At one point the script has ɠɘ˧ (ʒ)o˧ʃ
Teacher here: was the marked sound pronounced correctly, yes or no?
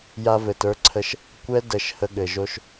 yes